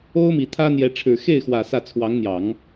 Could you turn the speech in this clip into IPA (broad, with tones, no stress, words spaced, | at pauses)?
o˥ʊ̯mi˨˩t̪ʰä˥n̪jɛ˧˥ ʈ͡ʂʰɻ̩˨˩xe˥˩ɪ̯xwä˨˩ sä˥˩ t͡sʰwɑ˧˥ŋn̪jɑ˨˩˦ŋ